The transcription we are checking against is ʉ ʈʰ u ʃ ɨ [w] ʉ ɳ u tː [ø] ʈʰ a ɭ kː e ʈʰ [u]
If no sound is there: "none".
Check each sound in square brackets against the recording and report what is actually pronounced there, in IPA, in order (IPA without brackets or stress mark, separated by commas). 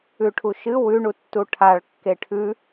w, u, ʉ